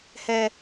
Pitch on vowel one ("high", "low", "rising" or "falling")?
high